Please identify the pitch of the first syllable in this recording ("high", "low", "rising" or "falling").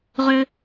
high